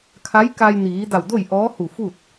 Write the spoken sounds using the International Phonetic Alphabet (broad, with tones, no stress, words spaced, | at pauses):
kʰa˧˥j ka˧jniː˩˧da˧˩w do˥˨j ʔɔː˧˥hu˧˩fu˥˨t̚